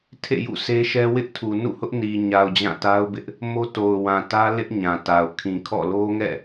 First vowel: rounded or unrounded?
unrounded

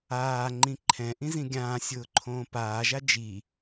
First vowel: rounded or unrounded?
unrounded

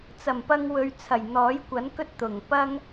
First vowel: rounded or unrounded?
unrounded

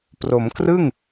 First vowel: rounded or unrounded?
rounded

